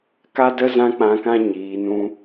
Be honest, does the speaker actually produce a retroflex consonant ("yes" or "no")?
no